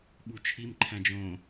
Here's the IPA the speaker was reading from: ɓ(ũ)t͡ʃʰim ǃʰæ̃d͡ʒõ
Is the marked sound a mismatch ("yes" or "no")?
yes